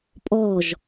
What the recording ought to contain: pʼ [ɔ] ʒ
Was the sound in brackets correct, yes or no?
yes